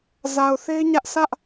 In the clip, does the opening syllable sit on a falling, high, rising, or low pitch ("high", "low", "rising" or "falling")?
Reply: low